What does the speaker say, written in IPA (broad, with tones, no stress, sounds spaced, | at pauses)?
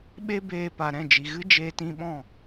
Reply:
ɓ e˦ b eː˧ p a˨ ɾ ɛ̃˦˨ d͡ʒ i˨ ɣ ɨ˦ d͡ʒ eː˧ t ĩ˧ ɓ ɔ̃˦˨